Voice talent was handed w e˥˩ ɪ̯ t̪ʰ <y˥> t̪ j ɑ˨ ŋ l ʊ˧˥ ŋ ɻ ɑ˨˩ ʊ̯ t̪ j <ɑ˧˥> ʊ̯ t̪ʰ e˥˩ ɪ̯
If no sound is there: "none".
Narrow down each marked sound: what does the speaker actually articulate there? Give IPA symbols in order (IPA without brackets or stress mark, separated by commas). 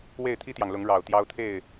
i˥, ɑ˥